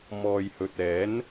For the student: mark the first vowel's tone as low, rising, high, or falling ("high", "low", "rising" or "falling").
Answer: low